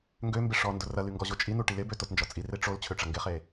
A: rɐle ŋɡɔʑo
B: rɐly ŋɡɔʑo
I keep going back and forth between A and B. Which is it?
B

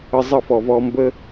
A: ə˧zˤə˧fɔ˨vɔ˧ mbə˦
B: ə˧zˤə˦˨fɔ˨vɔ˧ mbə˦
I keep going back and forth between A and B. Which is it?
B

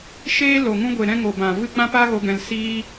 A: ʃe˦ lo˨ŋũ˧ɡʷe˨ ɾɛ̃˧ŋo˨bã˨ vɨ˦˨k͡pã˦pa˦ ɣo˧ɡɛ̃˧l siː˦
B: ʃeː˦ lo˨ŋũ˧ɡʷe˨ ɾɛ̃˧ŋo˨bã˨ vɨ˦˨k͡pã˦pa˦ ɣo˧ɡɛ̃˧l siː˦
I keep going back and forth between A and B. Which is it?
B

